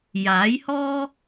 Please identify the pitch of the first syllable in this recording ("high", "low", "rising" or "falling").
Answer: rising